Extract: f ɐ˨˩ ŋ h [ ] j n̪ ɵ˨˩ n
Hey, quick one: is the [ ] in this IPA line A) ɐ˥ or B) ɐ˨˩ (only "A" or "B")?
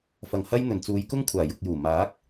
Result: A